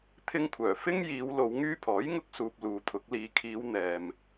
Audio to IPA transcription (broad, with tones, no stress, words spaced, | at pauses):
t̪ʰɪ˧ŋkʷʰœː˨˩ fɪ˥ŋ jiː˨˧wlo˨˧w ŋyː˧pʰɔː˨˥jŋʊ˧k̚suː˨p̚ luː˨t̪ʰʊ˨˥k̚ liː˨kʰiː˨˧w n̪ɛː˨m